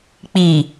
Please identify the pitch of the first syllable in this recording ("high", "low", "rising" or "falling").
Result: low